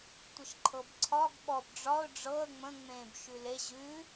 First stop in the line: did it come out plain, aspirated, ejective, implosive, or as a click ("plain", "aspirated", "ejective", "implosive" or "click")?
plain